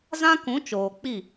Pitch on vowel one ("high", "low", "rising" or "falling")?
high